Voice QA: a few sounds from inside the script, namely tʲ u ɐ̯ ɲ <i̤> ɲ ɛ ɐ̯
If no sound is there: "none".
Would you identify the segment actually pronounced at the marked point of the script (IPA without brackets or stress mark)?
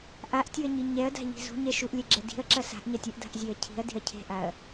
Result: i